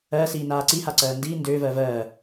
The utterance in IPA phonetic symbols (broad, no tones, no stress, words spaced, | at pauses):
ɜsiːnaː ǀihaǀɜː ndiː ndøːvɜː vɜː